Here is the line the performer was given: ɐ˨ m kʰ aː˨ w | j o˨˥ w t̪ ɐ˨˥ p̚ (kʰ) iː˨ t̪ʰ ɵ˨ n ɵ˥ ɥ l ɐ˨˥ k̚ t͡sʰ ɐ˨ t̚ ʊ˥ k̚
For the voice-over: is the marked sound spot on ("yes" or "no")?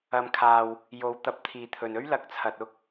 no